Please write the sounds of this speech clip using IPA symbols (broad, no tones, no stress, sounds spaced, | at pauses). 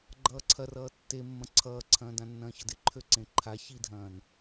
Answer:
ɡ͡ǃ ʌː ǀʰ ɐ r ʌː tː e mː ɐ̃ ǀʰ ʌː ǀʰ ɐ̃ː d ã nː ɐ̃ː ç ʌ d ɪ ǃʰ ø ǀ ẽ ǃʰ a ç i dʱ ɐ̃ː n